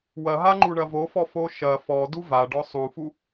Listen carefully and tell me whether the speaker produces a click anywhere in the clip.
yes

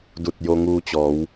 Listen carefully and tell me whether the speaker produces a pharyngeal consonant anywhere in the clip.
no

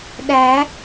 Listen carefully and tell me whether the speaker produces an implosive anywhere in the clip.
yes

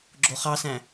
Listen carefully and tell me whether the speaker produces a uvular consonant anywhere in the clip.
yes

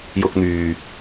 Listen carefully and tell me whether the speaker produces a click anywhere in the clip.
no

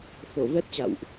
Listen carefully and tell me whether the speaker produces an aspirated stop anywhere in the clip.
no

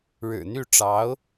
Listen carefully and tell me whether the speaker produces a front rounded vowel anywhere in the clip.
yes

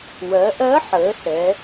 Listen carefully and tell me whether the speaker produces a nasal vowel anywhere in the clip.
no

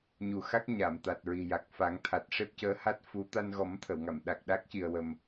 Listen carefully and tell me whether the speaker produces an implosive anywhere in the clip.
yes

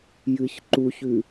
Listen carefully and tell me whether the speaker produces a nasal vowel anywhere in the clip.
no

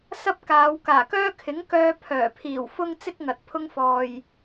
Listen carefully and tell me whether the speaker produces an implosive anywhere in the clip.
no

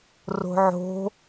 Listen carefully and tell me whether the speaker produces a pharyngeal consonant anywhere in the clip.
yes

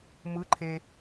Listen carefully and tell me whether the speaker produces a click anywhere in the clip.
yes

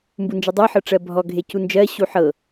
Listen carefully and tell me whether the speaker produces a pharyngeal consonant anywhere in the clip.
yes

